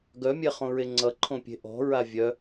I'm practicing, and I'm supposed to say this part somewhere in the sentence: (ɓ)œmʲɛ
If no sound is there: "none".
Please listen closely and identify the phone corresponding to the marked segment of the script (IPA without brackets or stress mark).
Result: ɡ